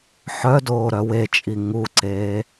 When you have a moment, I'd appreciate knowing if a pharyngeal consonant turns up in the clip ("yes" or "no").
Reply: yes